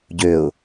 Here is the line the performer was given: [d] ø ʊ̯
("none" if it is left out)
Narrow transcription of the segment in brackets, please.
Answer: ɟ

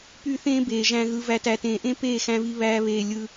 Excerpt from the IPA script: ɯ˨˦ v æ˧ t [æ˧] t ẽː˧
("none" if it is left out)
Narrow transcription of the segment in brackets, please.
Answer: æ˧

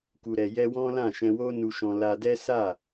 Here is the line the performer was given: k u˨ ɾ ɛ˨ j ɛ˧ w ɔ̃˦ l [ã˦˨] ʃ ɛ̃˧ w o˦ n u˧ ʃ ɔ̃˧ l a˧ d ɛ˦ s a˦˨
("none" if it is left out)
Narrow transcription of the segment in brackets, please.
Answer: ã˦˨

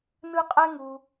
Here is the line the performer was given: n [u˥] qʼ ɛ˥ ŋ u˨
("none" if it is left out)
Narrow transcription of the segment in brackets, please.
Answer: ɯ˥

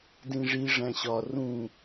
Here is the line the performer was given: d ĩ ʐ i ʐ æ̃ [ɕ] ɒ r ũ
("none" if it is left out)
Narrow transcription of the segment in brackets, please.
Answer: ɕ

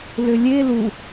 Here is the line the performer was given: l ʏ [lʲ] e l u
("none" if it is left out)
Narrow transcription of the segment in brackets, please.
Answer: lʲ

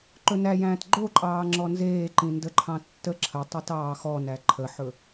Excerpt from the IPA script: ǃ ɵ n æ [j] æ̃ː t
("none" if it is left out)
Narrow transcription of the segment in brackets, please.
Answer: j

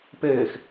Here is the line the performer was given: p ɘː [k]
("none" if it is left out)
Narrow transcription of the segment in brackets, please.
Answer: x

